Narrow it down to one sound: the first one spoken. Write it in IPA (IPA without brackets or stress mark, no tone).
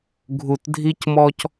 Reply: ɡʱ